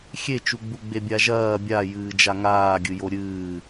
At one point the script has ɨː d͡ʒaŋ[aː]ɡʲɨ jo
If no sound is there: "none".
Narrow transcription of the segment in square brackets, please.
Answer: aː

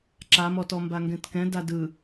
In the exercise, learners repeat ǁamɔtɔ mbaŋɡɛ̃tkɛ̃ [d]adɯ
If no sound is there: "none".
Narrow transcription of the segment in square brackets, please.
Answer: d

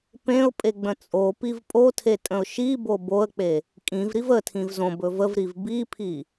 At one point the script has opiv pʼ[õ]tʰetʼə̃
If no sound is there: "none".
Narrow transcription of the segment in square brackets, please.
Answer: o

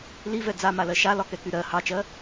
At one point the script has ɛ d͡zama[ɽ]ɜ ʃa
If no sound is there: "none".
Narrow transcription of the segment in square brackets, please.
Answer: l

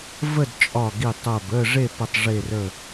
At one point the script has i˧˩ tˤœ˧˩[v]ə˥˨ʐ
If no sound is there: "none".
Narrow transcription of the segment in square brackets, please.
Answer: b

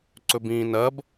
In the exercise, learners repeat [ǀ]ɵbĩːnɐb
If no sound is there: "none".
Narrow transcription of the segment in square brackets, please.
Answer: ǀ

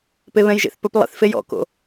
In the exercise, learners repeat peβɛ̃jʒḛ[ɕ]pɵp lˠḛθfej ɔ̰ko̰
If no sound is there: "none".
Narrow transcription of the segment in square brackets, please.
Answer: θ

